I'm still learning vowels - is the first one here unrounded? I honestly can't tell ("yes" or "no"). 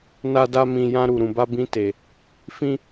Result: yes